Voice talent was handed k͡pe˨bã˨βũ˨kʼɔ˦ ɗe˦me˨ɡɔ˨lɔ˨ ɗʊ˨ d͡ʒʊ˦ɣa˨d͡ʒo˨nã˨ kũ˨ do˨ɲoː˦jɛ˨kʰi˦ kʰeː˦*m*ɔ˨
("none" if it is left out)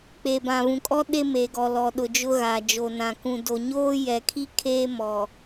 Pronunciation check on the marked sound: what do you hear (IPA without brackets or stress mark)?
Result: m